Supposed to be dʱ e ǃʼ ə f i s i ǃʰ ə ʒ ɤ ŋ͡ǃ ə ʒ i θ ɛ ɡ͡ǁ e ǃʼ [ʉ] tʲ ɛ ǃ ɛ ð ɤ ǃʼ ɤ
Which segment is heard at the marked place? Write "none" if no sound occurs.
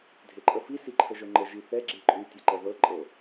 ʉ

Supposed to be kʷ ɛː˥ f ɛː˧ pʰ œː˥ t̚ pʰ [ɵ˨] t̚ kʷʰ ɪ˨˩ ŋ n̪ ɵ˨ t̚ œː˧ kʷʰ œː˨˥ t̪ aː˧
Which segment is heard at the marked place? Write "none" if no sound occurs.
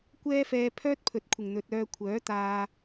ɵ˨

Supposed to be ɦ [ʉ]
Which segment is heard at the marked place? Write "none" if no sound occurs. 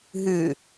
ʉ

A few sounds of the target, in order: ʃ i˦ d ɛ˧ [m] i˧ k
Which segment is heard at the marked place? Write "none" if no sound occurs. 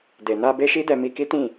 m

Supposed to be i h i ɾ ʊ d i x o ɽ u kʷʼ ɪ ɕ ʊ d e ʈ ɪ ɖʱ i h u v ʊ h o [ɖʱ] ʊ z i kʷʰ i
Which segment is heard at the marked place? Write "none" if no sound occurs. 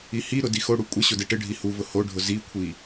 ɖʱ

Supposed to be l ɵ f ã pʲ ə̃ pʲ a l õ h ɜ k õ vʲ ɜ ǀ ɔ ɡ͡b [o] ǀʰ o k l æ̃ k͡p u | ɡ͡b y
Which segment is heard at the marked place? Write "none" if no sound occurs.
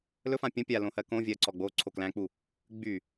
o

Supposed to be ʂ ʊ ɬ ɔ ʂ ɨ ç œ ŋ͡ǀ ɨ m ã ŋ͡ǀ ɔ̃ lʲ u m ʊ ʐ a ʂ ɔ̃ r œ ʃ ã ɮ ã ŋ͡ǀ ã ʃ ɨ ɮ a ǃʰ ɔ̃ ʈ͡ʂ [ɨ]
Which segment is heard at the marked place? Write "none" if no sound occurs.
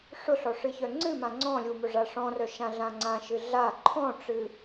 ɨ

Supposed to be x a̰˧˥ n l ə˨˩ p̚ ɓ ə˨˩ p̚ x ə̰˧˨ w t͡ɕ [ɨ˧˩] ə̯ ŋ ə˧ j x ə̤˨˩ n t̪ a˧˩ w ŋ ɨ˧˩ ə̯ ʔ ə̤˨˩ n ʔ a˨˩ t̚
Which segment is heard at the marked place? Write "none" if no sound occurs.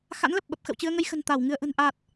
ɨ˧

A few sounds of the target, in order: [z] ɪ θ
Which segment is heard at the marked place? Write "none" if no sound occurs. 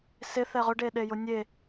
s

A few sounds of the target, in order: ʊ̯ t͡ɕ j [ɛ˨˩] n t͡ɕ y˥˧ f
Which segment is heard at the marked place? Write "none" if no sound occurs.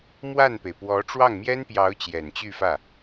ɛ˨˩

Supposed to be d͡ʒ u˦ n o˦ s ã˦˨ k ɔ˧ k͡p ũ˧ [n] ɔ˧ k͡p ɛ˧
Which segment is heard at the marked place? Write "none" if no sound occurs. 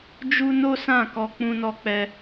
n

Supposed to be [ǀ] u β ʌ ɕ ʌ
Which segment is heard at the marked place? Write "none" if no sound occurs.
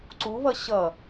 ǀ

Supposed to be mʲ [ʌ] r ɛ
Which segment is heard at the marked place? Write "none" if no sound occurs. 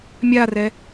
a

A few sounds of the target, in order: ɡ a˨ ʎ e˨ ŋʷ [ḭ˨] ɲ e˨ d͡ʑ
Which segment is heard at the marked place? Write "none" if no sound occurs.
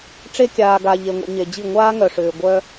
ḭ˨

